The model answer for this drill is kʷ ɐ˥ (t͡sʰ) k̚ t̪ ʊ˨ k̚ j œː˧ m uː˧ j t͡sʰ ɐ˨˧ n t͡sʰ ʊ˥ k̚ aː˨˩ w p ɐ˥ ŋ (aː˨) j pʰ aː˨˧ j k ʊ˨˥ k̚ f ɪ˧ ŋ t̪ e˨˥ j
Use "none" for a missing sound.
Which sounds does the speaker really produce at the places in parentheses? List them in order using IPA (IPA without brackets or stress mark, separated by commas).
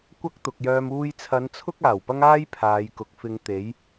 none, aː˥